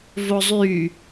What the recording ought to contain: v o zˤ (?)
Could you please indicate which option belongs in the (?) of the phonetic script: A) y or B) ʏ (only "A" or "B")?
A